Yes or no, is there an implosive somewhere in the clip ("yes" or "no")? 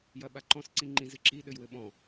yes